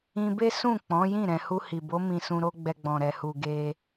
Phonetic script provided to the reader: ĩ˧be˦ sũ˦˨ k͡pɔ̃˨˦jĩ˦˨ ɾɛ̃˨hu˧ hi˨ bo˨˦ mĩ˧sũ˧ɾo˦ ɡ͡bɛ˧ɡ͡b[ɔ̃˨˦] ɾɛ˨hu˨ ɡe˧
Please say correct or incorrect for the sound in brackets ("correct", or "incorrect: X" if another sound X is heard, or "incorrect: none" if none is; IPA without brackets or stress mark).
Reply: incorrect: ɔ̃˨